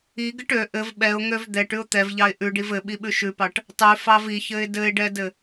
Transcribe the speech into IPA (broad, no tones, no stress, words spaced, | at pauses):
iɡɘʈ ø ʔɘv ɓɛʊ̯ŋøv d̪ɛʈʉʊ̯ t̪ɛvʎɑɪ̯ ʔʉɖiv ɘɓiɓʉ ʃʉpɑʈ | tˤʉfɑv içɘɪ̯ dɘɪ̯ɖɛdɘ